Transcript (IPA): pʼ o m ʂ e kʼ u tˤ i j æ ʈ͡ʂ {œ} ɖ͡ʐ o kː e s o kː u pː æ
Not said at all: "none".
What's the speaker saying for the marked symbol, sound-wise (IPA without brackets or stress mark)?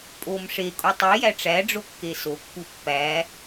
æ